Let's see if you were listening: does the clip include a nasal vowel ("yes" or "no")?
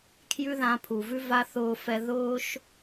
yes